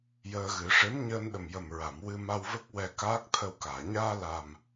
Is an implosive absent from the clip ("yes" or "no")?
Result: no